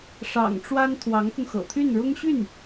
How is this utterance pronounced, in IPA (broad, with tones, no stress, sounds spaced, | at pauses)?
ʂ ɑ̰˨˩ ŋ ʈ͡ʂ w a˥ n t̪ʰ w ɑ˧˥ ŋ k ʊ˧ ŋ x ɤ̰˨˩ t̪ʰ y˥˩ n ɻ ʊ˥ ŋ ɕ y˥˩ n